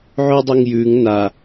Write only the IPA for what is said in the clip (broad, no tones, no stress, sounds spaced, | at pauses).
ʕ ʉ dˤ i ŋ j ʉ ŋ n a